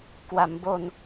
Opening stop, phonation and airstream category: plain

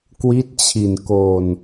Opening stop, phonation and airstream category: plain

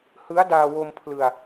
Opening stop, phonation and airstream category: plain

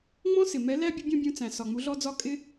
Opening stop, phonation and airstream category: plain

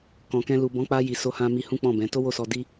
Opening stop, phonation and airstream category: plain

